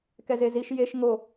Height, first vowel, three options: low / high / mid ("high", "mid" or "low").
mid